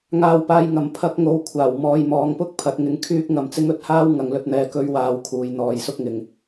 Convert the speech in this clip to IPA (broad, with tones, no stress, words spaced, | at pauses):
ŋaː˨wpaː˨j ŋɐ˨˩m pʰɐ˨˥k̚ŋo˨˧w kʷʰaː˨˩wmɔː˨jmɔː˨ŋpʊ˥k̚ pʰɐ˨˥t̚ŋɪ˨˥ŋ kʰyː˥k̚ŋɐ˧mt͡sɪ˥ŋ ɵ˧t̚haː˥w ŋɐ˨ŋlɵ˧t̚n̪ɛː˨ kɵ˨˧ɥwaː˨w kʰuː˨jn̪ɔː˨jsʊ˥k̚ŋɪ˨ŋ